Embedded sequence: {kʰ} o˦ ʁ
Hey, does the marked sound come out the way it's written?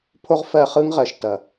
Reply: no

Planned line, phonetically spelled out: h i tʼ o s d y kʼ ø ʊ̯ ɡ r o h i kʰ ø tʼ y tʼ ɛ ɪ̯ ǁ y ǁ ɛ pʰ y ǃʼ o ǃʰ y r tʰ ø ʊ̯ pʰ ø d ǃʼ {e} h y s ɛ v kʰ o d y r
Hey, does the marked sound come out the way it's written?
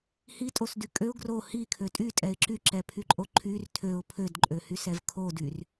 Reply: no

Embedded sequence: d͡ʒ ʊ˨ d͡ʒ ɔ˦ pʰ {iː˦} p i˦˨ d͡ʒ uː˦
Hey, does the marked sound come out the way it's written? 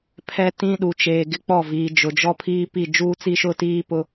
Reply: yes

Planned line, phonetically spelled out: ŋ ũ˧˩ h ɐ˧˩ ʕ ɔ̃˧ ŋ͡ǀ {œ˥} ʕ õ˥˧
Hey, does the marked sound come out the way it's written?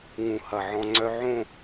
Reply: yes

